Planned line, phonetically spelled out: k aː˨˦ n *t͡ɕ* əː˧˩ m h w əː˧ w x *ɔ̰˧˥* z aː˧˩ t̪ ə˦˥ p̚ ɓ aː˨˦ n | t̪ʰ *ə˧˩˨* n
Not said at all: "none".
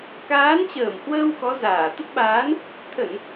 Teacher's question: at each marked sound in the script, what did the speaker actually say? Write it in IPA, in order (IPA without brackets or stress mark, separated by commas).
t͡ɕ, ɔ˨˦, ə˧˩˨